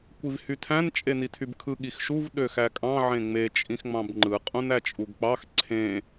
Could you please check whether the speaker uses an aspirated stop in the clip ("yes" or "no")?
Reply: yes